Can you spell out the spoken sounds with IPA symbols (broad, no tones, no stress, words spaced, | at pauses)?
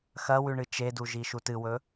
xɐwʉɳɨ t͡ʃeduʒi ʃutɨwɵ